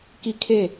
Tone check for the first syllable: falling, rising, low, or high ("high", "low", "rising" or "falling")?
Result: high